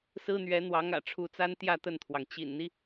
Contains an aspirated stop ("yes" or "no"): yes